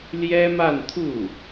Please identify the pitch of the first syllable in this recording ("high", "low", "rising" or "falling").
high